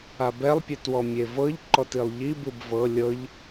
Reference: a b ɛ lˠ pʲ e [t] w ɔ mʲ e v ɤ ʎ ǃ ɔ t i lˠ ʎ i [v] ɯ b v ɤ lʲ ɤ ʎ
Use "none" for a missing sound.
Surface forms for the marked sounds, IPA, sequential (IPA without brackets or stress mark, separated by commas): t, b